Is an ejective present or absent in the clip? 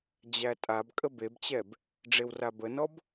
present